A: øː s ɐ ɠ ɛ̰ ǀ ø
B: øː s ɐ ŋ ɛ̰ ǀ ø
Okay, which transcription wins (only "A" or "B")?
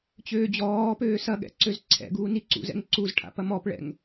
A